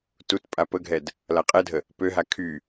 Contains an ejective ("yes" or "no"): yes